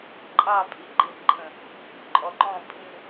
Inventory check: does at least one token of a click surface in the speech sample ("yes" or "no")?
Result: yes